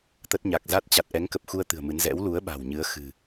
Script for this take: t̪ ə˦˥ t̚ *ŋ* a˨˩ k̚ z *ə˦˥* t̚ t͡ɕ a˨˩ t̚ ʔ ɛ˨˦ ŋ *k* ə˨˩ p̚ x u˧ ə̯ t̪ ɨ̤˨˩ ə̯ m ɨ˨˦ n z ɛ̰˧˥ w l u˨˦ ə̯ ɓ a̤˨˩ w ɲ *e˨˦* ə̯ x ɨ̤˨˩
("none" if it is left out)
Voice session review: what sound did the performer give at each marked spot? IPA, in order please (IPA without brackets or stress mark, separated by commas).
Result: ɲ, a˦˥, k, ɨ˨˦